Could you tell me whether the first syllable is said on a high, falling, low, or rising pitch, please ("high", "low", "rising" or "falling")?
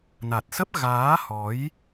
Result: low